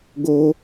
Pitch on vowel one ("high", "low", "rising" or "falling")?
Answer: high